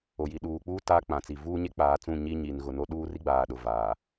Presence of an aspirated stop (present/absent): absent